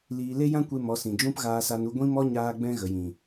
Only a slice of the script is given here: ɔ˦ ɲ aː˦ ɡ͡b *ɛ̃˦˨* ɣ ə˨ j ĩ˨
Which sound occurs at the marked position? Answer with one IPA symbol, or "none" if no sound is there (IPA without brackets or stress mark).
ɛ̃˦